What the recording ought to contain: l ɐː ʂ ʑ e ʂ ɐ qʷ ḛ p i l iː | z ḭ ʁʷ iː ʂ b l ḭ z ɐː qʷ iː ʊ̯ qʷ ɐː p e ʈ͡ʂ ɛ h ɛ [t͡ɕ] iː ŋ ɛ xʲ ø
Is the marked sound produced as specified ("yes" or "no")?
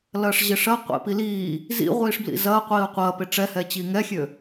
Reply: yes